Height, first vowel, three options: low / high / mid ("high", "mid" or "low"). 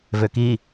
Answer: mid